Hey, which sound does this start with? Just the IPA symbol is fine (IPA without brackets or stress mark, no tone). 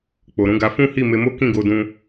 k͡p